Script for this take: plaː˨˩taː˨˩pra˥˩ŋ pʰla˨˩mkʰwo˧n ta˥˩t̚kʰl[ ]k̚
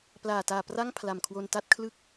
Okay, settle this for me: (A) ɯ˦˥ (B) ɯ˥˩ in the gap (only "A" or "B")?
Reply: B